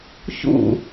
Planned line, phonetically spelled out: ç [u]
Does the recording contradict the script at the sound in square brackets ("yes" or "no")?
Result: yes